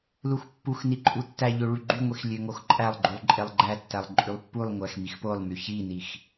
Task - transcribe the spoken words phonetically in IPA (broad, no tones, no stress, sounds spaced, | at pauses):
l u x pː u x n i ǃʼ u tː æ ʎ ø ɭ y ɡ͡ǃ y ŋʷ i x lʲ ø ŋ o x ǃʼ æ lˠ ɡ͡ǃ u lˠ ǃʼ e lˠ ɡ͡ǃ æ tː æ lˠ ǃʼ y lˠ pː u lˠ ŋʷ æ x m i x p o lˠ m y ç i n i x